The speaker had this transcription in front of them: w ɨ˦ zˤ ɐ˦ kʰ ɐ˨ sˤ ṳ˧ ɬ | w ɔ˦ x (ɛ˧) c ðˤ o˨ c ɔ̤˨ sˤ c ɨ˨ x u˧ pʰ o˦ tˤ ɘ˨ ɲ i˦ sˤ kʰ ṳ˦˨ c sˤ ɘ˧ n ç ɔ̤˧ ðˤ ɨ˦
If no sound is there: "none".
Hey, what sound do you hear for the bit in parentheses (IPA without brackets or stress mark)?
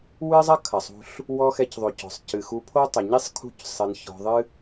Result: ɛ˧